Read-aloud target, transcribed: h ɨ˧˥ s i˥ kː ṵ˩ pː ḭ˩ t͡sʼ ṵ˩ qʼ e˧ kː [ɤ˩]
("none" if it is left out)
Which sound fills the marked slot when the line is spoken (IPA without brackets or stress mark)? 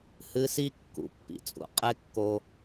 o˩